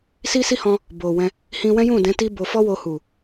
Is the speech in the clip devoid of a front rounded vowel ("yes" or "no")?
yes